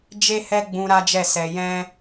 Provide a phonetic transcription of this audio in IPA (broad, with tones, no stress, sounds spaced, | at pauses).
d͡ʒ e˦ h ɛ˦ ɡ͡b ũ˧ ɾ a˦ d͡ʒ ɛ˦˨ s ɛ˧ j ɛ̃˦